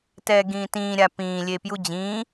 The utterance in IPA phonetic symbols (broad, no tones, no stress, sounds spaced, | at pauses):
t ɛː ɡ ĩː t ĩː ɾʲ a p ĩː lʲ e p j u d͡ʑ ĩː